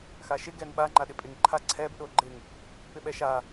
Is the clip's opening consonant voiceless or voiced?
voiceless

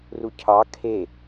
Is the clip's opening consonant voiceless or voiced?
voiced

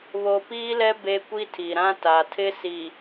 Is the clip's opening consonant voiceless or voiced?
voiced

